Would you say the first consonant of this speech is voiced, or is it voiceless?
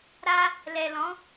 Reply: voiced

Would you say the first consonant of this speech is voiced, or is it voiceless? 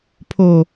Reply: voiceless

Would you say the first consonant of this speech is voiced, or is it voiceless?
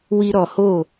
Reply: voiced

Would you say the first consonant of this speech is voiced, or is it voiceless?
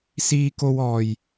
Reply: voiceless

